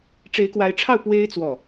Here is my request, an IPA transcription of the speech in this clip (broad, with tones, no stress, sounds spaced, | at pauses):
ʈ͡ʂ e˧˥ ɪ̯ k w a˧˥ ɪ̯ ʈ͡ʂʰ ɑ˥˩ ʊ̯ p w e˥ ɪ̯ t͡s w ɔ˥˩